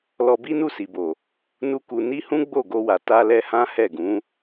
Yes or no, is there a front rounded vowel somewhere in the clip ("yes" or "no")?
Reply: no